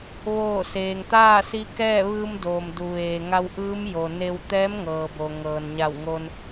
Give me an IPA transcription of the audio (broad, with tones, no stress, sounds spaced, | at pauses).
ʋ oː˧˩ s eː˩ ŋ t̪ aː˥˨ s i˧˥ k ɛː˥˨ ʋ ɯː˧ m d oː˩ m d u˩ ʋ eː˩ ŋ a˧ w ʔ ɯː˧˥ m j o˩ n e˧ w t̪ ɛː˧˥ m ŋ ɤː˩ b o˩ ŋ ɤː˩ n ɲ a˧˩ w ŋ o˧ n